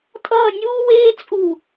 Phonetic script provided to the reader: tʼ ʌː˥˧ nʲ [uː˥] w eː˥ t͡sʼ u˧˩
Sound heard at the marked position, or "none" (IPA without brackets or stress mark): uː˥